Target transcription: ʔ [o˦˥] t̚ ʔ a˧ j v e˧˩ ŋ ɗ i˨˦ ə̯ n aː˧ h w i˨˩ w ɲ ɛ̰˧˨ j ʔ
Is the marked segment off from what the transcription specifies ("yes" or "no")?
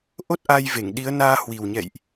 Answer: no